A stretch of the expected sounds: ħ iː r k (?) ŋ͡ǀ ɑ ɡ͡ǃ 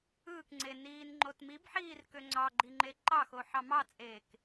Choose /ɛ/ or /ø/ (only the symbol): ø